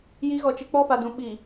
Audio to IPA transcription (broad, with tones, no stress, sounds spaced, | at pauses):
j i˨˦ ɣ ɔ˨ t͡ʃ ɪ˨ k͡p ɔ˦ f a˨ d ũ˨ ɓ i˨